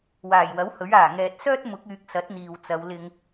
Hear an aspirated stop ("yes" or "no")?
no